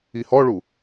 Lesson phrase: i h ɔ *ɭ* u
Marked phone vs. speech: correct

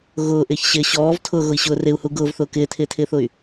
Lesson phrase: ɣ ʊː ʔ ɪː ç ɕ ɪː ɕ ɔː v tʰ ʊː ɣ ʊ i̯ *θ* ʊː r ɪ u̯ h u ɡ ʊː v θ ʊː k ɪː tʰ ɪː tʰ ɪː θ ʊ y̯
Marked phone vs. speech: incorrect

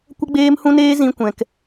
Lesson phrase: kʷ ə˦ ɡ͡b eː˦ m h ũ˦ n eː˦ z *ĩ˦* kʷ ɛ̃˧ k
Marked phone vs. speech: correct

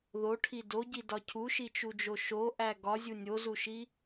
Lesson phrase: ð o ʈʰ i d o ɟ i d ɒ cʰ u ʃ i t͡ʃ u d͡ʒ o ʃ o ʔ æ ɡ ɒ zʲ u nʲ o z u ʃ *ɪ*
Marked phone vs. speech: incorrect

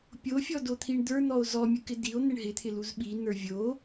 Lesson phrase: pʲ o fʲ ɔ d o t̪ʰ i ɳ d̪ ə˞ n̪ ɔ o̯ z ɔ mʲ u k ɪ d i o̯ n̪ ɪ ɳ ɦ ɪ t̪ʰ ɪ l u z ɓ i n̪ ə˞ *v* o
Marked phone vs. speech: incorrect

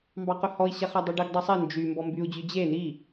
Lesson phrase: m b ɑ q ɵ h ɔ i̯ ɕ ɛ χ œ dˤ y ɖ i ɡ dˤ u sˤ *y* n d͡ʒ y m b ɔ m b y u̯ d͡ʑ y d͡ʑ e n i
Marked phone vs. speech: incorrect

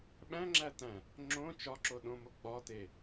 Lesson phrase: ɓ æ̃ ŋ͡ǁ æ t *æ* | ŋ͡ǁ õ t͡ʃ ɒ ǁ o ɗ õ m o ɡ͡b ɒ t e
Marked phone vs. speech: incorrect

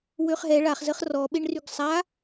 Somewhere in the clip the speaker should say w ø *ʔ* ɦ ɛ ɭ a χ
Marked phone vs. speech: incorrect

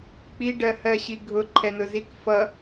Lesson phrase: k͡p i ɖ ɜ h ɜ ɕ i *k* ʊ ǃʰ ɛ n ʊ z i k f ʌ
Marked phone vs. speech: incorrect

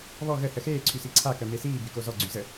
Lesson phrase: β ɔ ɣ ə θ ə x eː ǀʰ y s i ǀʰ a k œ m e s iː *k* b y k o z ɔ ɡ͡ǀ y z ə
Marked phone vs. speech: incorrect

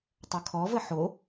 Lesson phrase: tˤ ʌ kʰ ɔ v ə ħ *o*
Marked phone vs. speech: correct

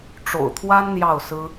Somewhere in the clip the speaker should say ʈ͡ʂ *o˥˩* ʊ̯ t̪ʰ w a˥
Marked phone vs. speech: incorrect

